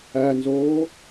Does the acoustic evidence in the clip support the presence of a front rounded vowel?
no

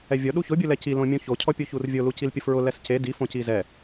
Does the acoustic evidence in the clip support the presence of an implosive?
yes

